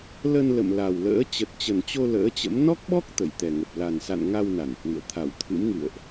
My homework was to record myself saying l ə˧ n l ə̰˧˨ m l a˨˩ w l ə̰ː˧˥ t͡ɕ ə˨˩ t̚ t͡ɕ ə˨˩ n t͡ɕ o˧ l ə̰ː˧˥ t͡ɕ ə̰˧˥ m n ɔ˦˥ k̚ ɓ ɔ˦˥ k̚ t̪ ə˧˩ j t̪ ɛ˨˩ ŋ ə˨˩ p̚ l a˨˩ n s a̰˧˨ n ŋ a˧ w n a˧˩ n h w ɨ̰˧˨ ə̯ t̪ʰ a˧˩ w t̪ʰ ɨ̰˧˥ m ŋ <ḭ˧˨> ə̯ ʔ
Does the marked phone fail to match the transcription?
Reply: yes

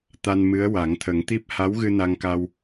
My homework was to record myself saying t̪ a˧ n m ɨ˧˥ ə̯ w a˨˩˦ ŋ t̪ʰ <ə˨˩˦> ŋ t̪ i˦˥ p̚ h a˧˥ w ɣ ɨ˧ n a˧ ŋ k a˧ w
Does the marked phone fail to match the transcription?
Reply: no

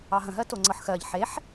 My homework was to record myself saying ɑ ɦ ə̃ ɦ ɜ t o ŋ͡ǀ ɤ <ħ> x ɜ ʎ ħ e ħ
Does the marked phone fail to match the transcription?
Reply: no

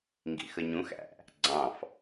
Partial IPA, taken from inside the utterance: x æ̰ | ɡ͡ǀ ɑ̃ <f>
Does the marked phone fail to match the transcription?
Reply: no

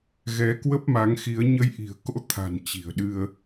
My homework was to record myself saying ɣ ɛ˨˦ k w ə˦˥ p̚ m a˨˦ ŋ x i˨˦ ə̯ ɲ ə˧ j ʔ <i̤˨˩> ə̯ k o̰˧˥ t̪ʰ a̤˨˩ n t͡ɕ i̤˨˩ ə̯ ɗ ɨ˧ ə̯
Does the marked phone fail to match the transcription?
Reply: no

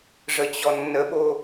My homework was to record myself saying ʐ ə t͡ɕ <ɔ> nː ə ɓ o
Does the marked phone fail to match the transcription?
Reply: no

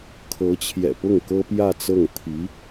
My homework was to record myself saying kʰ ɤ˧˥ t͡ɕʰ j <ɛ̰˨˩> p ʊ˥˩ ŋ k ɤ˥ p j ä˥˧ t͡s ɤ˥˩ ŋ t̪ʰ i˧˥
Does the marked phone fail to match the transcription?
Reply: no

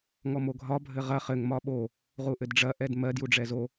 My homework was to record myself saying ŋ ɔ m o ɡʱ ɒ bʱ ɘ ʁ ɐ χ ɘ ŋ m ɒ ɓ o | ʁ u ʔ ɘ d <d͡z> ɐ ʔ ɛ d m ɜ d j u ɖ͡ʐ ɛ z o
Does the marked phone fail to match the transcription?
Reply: yes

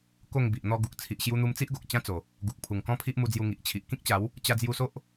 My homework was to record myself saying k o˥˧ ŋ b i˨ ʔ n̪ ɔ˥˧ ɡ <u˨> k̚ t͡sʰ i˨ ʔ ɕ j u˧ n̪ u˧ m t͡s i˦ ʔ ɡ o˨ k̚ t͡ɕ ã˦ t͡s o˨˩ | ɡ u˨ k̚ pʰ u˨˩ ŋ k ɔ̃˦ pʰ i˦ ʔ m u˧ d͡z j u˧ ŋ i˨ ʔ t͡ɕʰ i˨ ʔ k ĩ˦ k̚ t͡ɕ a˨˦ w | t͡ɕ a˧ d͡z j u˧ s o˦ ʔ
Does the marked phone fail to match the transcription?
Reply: no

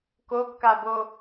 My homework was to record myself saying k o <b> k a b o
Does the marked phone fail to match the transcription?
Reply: no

